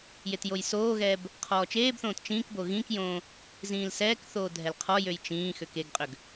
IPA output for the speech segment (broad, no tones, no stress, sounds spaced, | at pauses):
j e t j o j s oː ɣ ɛː b | qʰ ɔː t͡ʃ eː b θ õː t t͡ʃ ĩː k b o ɣ ĩ k j õː | z ĩː l s ɛː k θ oː dʱ ɛ l qʰ ɔ j ø j t͡ʃ ĩː x ø k e ɡ qʼ ø ɡ